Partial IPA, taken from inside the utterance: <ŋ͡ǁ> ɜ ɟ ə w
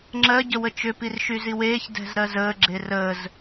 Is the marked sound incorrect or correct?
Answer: correct